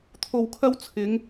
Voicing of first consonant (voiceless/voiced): voiceless